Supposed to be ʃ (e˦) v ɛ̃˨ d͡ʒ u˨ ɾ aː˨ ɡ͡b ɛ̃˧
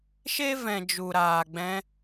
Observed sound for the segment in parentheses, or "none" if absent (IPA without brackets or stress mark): e˦